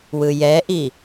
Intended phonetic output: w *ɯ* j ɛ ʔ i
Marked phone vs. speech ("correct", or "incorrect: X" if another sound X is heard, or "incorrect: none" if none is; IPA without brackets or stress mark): correct